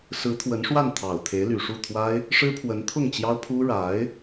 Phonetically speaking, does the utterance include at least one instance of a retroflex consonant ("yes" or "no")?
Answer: yes